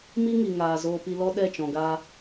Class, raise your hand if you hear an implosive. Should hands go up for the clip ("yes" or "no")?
yes